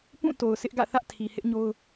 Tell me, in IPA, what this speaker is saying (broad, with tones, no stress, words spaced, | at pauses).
pũ˦˨to˨ʊ̯ sʰɪ˦ʔɡä̰˦˨ θä˦ʔtʰi˨ hɪ˦ʔ ɲo˦ʊ̯